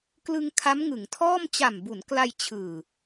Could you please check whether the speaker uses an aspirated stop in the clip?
yes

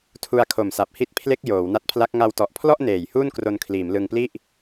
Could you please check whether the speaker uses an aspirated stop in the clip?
yes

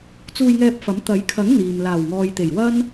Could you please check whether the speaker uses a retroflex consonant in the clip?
no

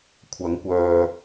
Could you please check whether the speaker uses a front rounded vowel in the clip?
yes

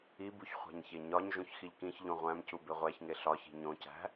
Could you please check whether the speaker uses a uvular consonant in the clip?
yes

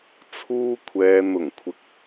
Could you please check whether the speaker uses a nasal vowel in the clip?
no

